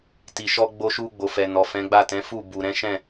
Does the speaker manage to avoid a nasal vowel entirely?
no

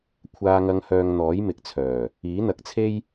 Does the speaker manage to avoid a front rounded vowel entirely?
no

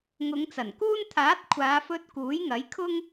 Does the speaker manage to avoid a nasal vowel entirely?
yes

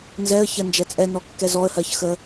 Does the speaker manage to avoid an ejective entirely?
no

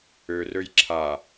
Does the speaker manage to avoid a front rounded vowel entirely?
no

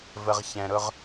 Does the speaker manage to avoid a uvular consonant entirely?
no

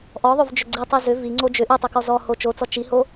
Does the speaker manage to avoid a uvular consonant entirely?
yes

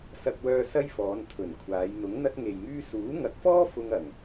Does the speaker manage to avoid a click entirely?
yes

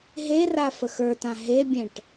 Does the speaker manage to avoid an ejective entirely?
yes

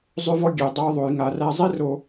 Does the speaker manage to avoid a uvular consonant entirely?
yes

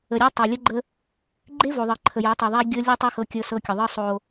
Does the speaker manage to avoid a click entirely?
no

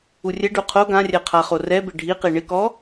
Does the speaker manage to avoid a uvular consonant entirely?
no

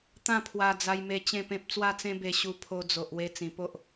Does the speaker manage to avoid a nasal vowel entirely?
no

